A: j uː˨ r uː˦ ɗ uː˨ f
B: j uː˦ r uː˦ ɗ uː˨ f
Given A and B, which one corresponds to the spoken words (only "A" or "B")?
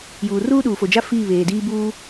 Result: A